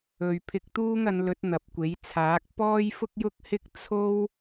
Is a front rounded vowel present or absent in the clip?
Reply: absent